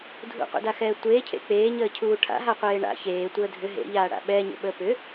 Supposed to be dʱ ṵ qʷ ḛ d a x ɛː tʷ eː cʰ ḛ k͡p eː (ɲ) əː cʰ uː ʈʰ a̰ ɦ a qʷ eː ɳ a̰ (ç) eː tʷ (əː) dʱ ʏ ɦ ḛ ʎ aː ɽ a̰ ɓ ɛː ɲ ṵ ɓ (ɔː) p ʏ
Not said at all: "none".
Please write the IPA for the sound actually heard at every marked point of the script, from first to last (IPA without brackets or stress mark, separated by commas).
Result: ɲ, ç, əː, əː